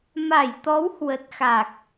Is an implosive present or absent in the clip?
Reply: absent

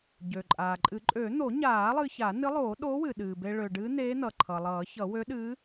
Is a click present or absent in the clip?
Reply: present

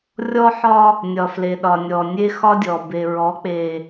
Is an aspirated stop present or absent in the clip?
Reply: absent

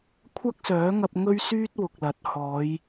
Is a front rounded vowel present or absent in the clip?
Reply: present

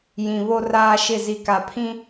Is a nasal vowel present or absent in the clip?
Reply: present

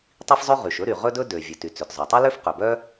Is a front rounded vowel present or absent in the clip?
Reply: present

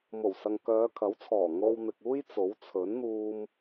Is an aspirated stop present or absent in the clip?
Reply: present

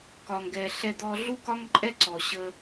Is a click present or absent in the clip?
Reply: present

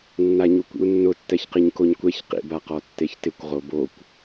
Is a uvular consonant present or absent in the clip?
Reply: present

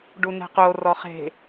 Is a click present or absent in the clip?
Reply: absent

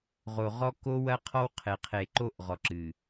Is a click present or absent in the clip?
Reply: present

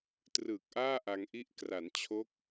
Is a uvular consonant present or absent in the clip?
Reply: absent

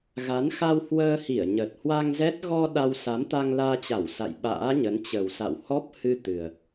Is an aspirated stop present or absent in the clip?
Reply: absent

